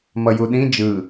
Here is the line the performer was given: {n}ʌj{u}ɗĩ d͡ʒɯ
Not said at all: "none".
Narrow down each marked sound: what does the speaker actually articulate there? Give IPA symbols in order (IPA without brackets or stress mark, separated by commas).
m, u